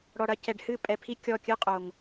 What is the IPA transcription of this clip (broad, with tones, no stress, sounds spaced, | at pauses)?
ɽ ɔ˨ ɽ ɐ˧ c ɛ˨ ɖ h ɨ˦˨ pʼ ɛ˨ pʰ i˧ kʲ ɔ˦˨ kʲ ɨ˦ qʼ o˨ ŋ